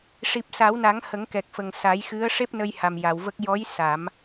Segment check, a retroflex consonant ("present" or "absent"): present